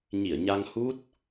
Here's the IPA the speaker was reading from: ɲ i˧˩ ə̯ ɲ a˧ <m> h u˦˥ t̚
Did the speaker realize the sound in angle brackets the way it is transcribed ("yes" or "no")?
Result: no